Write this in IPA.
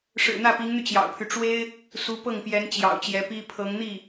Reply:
ʂ ɻ̩˨˩ n̪ ä˥˩ p i˧˥ ŋ n̪ y˧ t͡ɕ j ɑ̰˨˩ ʊ̯ pʰ y˦ ʈ͡ʂ w e˥ ɪ̯ | s u˧˥ p ɤ˥˩ ŋ p j ɛ˧˥ n t͡ɕ j ɑ̰˨˩ ʊ̯ t͡ɕ j ɛ˧˥ p i˥ pʰ ɤ˧˥ ŋ n̪ i˥˩

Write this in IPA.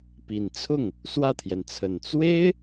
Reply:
p i˨˩ n t͡sʰ ʊ˥˩ ŋ | s w ä˥˩ t̪ʰ j ɛ˩ n t͡sʰ ə˨˩ n t͡s w e˥ ɪ̯

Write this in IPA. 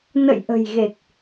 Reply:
n ə̰˧˨ j ʔ ə̤˨˩ j ɣ e˨˩ k̚

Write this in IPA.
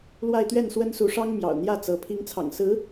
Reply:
l w a˥˧ ɪ̯ t̪ ɥ ɛ˥˩ n s w ə˥ n s u˧˥ ʂ ɑ˥ ŋ m j ɑ̰˨˩ ʊ̯ n̪ j ä˥˩ t͡s ɤ˧˥ pʰ i˧˥ ŋ t͡sʰ ɑ̰˨˩ ŋ s ɹ̩˧˥

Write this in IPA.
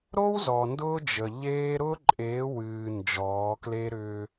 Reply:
ɾ o˦ w z ɔ˨ n d ʊː˦ d͡ʒ ə˨ ʎ eː˦ ɾ ʊː˦ ǃʼ eː˨˦ w ɨː˨ n d͡ʒ ɔː˨˦ k l e˦ ɾ ʏː˦

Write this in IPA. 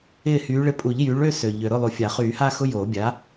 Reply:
ɪː˥˩ h yː˨˥ ɭ ɪ˨˥ pʼ u˨˩˦ ʎ j yː˨˥ ɭ ø˥˧ s ø˨ ʎ ø˨ ɾ ʊ˥˩ lˠ u˨ fʲ a˨˩˦ χ yː˨˩˦ h aː˥˧ x ʊ˧˥˧ j oː˨˩˦ bʲ a˨˥

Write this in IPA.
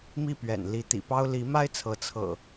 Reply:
m i˥˨ p ɥ ɛ̰˨˩ n l i˨˦ t̪ ḭ˨˩ p ɑ˦ ʊ̯ l i˨˦ m a˦ ɪ̯ t͡sʰ ɤ˨˦ t͡sʰ ɤ̰˨˩

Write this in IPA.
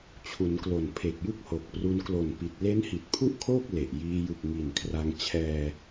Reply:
t͡ɕʰ u˩˦ n k l o˨˩ n pʰ e˨˩ k̚ j ɯ˥˩ k̚ h o˨˩ k̚ p r u˧ n k l o˨˩ n p i˨˩ t̚ l e˦˥ n h i˨˩ t̚ pʰ u˥˩ ʔ kʰ oː˥˩ k̚ l e˨˩ ʔ j iː˧ j ɯ˨˩ k̚ ŋ i˨˩ n kʰ r a˧ ŋ t͡ɕʰ ɛː˧

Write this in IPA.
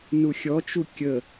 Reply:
n u xʲ ɔ t͡ʃ u kʲ ə

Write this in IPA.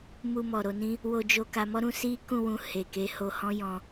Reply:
m u˧ m ɔ˨ ɾ o˧ n ĩ˦ | w o˧ d͡ʒ o˧ k a˧ m ɔ˦ ɾ ũ˧ s i˦ k ũ˦˨ w ũ˧ h e˨ k e˨˦ h o˧ h ɔ̃˦ j ɔ̃˧

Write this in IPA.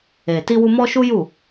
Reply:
e˨ t i˧ w u˧ m ɔ˧ ʃ u˦ j u˦˨

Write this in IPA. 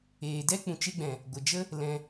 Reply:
eː˨ d ɛ˦ k͡p ũ˨ t͡ʃ e˧ ɡ͡b ɛ̃˨ | ɡʷ ə˨ d͡ʒ ə˦ | l ɛ̃˧

